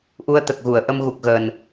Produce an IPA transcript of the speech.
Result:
ʔ u˧ ə̯ t̪ ə˨˩ k̚ ɣ u˨˩˨ ə̯ ʔ ə˧ m ɣ u˨˩ k̚ ɣ əː˨˩ n

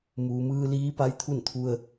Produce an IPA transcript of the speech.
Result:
m uː˩ m ɯː˧ l iː˧˥ p a˧˥ j t̪ʰ u˥˨ n t̪ʰ u˧ ə̯

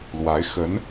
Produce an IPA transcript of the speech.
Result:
l w a˧˥ ɪ̯ x ə˧˥ n

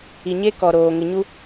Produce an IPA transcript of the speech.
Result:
i˨ ɲ e˦ k ɔ˨ ɾ oː˨ ŋ ɪ˨ ɲ u˦

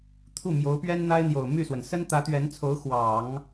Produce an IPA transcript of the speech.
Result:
t̪ʰ u˥˩ m j o˧˥ ʊ̯ p ɥ ɛ˥ n n̪ a˥ ɪ̯ n̪ j o˨˩ ʊ̯ m y˥˩ s w ə˩ n s ə˥ n t̪ ä˧˥ t̪ ɥ ɛ˧˥ n t͡sʰ o˧˥ ʊ̯ x w ɑ˨˩˦ ŋ

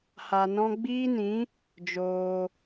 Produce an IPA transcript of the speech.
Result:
h a˧ n ɔ̃˦ ɡ͡b iː˦ n ĩ˨˦ | d͡ʒ oː˧

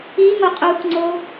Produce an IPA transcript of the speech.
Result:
i ŋ o qʼ u k ŋ͡ǀ o

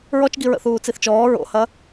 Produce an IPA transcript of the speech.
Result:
ɹ ɔ t͡ʃ ɡ i ɹ ə̰ θ uː t͡s i θ t͡ʃ ɔː ɹ o̰ h ɐ

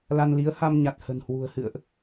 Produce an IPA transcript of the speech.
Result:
l a˧ n l i˨˦ ə̯ h a˧ m ɲ a˨˩ t̚ h ə̤˨˩ n h w ṳ˨˩ ə̯ h ɨ̰˧˨ ə̯ ʔ

